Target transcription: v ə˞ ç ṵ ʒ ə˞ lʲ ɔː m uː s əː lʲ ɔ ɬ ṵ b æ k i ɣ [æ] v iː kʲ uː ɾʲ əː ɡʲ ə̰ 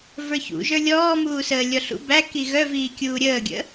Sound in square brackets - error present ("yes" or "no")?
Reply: yes